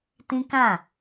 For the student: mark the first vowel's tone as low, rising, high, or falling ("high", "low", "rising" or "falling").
high